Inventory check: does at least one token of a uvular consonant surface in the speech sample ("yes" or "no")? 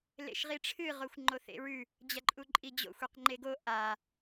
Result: yes